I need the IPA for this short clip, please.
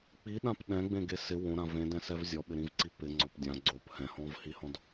k͡p i ɗ ã p ɗ ɛ̃ ɡ͡b ẽ ɡ e s ɪ w õ ɾ ã v ẽ d ɛ̃ s ɛ v zʲ ɔ ɓ ɪ ɾ ĩ v ǀ i p ɪ ŋ͡ǀ ɔ p dʲ ã ɡ͡ǀ o p h ɛ̃ h ɔ̃ v h i h ɔ̃ d

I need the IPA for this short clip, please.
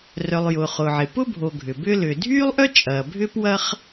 r œ˩ lˠ j ʊː˩ χ ʊː˩ ʕ ɪ˩ p ʊ˥ bʱ o˩ ɡʱ ʏ˩ b ʏ˥ l ʏ˩ dʱ yː˥ lˠ ʔ œ˥ t͡ʃʼ ɐː˩ bʱ ʏ˥ p w ɐ˥ χ

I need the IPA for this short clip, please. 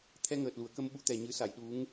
t̪ʰ ɛ˧ ŋ əː˨˩ t̚ l u˨˩˨ ə̯ k ə˧ m ɓ u˧˥ t̪ ɛ˨˩ ɲ ɨ˨˩˦ s a˨˩˨ j ɗ u˧˥ ŋ

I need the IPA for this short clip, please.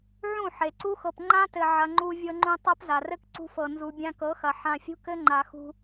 ʕ ũ˦˨ ħ e˨ ǀ u˦ x ɤ˧ p ŋ͡ǃ ã˦ t ɘ˨ ʕ ɐ˧ ŋ͡ǃ u˧ vʲ ɤ˧ ŋ͡ǃ ũ˧ tˤ a˦ p z a˨ r ɘ˦ k ǀ ṳ˧ f ɤ˨ n z u˨ bʲ ã˧ k ɤ˨˦ x ɐ˨ ħ ã˧ fʲ ṳ˦ k ɘ˦ ŋ͡ǃ a˨ x ṳ˧

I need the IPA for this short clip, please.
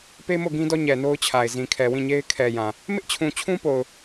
p e˦ m o˦˨ ɡ ĩ˦ d ɔ˦ ɲ ɛ˨ n o˦ ʊ̯ t͡ɕʰ a˨ ɪ̯ z ĩ˨ kʰ ɛ˨ w ĩ˦˨ ɲ e˦ ɪ̯ kʰ ɛ˨ j ã˨ | m ɪ˦ ʔ t͡ɕʰ ũ˨ t͡ɕʰ ũ˦ p o˨ ʊ̯

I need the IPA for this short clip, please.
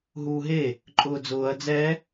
ɦ uː ɦ e | ǃʼ ʊː d͡z ʊː ɐ̯ d͡z ɛ

